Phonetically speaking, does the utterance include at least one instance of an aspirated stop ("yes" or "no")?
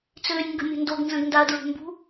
no